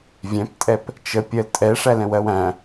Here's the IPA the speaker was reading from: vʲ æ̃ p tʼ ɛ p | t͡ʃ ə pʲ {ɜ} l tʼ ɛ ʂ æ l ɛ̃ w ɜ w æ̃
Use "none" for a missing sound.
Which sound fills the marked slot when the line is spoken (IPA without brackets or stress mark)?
ɜ